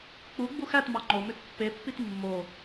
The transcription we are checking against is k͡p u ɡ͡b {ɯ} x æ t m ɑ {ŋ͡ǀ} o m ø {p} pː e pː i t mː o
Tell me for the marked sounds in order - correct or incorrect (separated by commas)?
incorrect, incorrect, incorrect